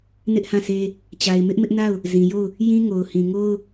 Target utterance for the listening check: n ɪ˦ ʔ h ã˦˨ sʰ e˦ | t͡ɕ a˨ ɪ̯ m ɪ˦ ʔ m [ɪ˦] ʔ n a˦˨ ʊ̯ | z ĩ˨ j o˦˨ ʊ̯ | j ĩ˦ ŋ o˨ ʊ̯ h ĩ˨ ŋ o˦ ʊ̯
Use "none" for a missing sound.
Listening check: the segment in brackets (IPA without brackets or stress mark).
ɪ˦